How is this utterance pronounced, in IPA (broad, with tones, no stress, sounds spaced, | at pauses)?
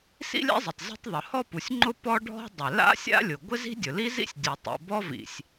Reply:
s ḭ˥ lʲ a̰˥ zˤ ɪ˩ tˤ z i̤˥ tˤ ðˤ ʊ˩ h ɔ˥ p u˩ sʲ ŋ͡ǃ ʊ˥ p ɔ˥ ɖʱ ɔ̤˥ dˤ ɪ˩ l a̰˥ sʲ a̰˥ lʲ ʊ˩ ɡʷ ɪ˥ z i̤˥ dʲ ʊ˩ l i˥ z ḭ˥ sʲ dʲ o˩ tˤ ḭ˩ b ɔ˥ v ḭ˩ sʲ